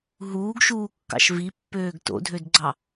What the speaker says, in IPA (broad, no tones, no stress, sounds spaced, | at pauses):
ɦ uː ɡ ʃ uː kː ɑ̰ ʃ v i pː øː ɡ t o̰ dʱ ø d ɡ͡ǀ ɑ